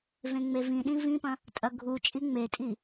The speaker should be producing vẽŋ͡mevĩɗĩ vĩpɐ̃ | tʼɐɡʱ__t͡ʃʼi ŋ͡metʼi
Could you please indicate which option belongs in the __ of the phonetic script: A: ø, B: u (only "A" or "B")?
B